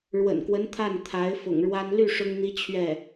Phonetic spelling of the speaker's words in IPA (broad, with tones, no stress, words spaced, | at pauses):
ɻwə̰˨˩nkwə˧˥n t̪ʰa˥˩n t̪ʰa˧˥ɪ̯ fʊ̰˨˩ŋɻwa˥n ly˥˩ ʂʊ˥ŋn̪i˥ t͡ɕʰɥɛ˥˩